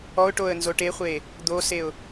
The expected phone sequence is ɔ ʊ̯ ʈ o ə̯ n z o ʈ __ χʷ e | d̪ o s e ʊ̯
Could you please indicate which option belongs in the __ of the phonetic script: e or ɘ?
e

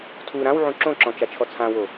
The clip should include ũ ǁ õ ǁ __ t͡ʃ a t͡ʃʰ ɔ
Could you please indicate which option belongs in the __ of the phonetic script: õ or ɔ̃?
ɔ̃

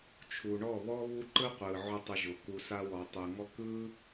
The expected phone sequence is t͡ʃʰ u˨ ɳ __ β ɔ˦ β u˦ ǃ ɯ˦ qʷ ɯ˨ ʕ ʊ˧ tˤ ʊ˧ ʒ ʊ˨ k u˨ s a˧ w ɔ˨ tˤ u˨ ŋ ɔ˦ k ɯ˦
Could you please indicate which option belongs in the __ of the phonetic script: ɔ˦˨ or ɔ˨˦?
ɔ˦˨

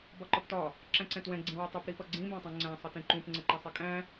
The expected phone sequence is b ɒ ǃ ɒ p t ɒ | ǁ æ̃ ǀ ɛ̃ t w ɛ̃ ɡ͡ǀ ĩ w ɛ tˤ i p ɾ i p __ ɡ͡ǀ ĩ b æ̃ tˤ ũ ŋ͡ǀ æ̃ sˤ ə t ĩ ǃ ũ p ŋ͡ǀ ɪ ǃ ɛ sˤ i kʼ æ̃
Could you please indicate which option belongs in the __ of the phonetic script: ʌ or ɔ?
ʌ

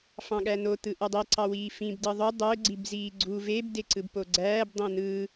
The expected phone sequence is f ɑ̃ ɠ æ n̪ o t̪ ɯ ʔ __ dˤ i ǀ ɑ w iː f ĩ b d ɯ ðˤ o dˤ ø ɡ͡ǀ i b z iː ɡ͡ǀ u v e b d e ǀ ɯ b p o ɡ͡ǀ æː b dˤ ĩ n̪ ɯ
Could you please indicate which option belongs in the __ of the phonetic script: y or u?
y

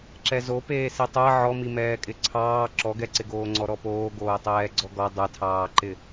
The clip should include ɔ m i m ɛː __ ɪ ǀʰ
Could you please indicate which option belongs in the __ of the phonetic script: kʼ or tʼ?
kʼ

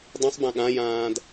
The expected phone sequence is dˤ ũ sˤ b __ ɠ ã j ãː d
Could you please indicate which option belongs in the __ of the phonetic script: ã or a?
ã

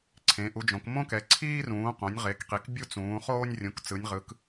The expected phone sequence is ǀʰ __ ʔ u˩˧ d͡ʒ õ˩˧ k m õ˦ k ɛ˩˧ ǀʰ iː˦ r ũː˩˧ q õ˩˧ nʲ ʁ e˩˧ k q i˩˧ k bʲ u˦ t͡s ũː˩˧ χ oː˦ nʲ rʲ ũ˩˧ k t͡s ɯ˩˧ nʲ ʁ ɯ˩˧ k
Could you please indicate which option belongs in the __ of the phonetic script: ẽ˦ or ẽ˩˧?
ẽ˩˧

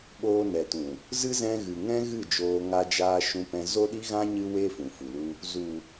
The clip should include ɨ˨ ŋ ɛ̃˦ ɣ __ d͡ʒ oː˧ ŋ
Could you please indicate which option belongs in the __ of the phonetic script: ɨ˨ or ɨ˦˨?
ɨ˦˨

